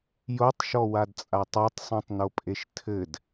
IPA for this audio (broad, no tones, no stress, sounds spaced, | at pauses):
j o tˤ ʃ ɔ w a d t͡sʼ a tˤ a tˤ sˤ ũ tˤ n o pʼ e ʃ tʰ ɘ d